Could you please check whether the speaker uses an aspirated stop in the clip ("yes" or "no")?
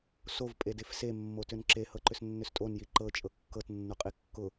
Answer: no